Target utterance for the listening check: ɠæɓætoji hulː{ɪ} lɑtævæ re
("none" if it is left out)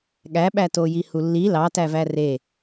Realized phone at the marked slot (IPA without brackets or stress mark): i